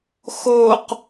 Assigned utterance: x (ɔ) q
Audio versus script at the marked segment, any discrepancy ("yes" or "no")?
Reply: yes